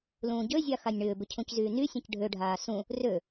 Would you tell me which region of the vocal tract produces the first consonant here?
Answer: tongue tip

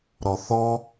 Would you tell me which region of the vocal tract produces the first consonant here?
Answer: tongue tip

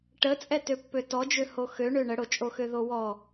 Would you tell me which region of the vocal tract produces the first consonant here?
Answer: retroflex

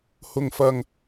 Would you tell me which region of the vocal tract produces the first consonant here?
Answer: throat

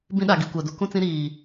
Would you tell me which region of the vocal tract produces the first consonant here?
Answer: lips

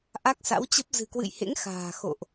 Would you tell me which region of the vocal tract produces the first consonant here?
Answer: throat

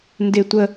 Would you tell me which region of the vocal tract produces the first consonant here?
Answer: tongue tip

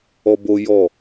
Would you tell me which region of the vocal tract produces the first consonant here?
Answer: lips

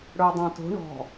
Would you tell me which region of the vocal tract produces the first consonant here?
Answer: retroflex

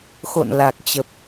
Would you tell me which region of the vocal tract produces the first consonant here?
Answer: velum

